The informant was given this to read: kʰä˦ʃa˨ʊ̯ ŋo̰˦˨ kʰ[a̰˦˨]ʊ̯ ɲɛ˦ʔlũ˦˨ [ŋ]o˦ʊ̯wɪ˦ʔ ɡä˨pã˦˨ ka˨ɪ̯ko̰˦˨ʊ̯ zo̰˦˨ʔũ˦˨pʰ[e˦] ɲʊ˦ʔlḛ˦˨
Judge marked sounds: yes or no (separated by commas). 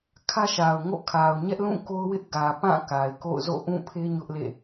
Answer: no, no, yes